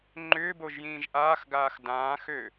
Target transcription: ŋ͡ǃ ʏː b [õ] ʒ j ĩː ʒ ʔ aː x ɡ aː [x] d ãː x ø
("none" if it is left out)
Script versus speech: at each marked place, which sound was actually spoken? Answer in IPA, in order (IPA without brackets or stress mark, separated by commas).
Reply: o, x